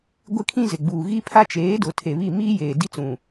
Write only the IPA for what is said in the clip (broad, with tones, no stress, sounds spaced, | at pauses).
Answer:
ɡʷ ɪ˦ kʰ ĩ˦ z ɪ˨ ɡ͡b uː˨ ɣ i˦ pʰ a˦ t͡ʃ eː˨˦ d ʊ˨ tʰ e˨ β i˦˨ m iː˦ j eː˨ d i˦ t͡s ũ˨